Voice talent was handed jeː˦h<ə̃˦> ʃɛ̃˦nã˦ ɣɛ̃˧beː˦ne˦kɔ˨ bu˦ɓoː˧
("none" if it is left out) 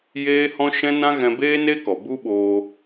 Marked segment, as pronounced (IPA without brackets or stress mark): ɔ̃˦